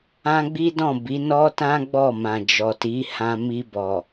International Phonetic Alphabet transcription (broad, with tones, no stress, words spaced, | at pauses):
ã˦ɡ͡bi˦dɔ̃˦˨ bi˨˦nɔ˦tã˦ ɡ͡bɔ˦˨mã˨d͡ʒɔ˨ti˨˦ hã˧ mi˧bɔ˨